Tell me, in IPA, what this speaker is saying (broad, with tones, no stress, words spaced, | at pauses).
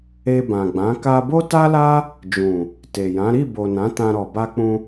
e˧bã˨ɡ͡bã˨˦ ka˧bo˦ta˦la˦ | d͡ʒũ˨ | te˨jã˨˦ ɾi˦˨bo˨ nã˨˦tã˧ɾɔ˨ ba˧k͡pũ˧